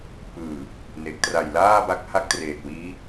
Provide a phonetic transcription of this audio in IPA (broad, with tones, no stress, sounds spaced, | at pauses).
p ɯː˨˩ | n e˨˩ k̚ t r a˨˩ j l aː˥˩ b a˦˥ k̚ h a˥˩ k̚ t r eː˨˩ t̚ w iː˦˥